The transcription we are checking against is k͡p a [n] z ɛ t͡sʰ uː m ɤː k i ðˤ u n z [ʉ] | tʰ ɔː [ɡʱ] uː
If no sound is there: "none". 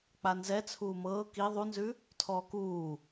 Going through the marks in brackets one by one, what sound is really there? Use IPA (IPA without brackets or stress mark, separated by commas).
n, ʉ, k